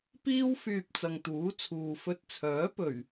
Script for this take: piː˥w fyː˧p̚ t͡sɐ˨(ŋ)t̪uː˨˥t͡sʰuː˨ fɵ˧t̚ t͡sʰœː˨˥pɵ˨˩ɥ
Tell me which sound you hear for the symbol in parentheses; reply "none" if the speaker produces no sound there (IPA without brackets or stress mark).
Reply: ŋ